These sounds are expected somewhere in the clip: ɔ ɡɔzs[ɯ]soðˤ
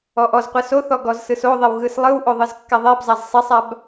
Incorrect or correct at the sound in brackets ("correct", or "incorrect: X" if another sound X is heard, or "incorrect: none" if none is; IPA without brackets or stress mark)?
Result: correct